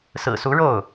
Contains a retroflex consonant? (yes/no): yes